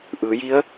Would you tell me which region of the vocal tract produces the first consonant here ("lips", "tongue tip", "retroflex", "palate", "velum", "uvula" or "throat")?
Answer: throat